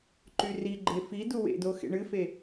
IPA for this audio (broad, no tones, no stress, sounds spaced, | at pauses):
ǃ y r i ɡ͡ǃ e f i d u w ḛ d o x ḛ ɳ ɨ f e